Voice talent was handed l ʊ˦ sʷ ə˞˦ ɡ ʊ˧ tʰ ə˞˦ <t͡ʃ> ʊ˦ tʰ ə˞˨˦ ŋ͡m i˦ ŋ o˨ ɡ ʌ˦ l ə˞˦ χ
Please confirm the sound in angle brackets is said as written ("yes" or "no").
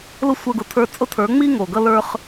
no